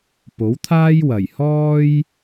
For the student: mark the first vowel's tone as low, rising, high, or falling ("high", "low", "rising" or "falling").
rising